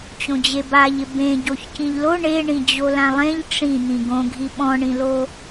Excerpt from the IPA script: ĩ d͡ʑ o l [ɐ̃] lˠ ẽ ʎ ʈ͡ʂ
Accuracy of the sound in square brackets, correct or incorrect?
incorrect